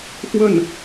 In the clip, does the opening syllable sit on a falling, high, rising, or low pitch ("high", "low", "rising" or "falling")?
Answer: falling